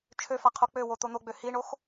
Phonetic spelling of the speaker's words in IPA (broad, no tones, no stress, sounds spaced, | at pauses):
t͡ʃʰ ø f a qʰ o k͡p ø w o t̪ o n̪ o ɡ͡b ø h i ɳ o x